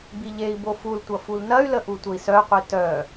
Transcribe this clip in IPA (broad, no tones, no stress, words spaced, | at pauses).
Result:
biʎei̯bo fultʷʌ fulnɐy̯lə ʔutʷəi̯sœqʷi tœ